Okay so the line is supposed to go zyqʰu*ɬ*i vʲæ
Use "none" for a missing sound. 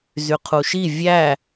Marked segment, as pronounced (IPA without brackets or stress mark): ʃ